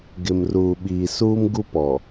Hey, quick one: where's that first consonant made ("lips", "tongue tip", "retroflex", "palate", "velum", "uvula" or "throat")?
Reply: velum